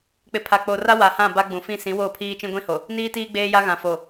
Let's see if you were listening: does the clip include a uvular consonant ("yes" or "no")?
no